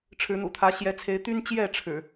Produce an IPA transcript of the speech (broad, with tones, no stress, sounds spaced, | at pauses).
ʈ͡ʂʰ ɻ̩˨˦ n̪ ṵ˨˩ t̪ʰ ä˨˦ ɕ j ɛ˨˦ t͡sʰ e˨˦ ɪ̯ t̪ y˦ n t͡ɕ j ɛ˥˨ ʈ͡ʂʰ ɻ̩˨˩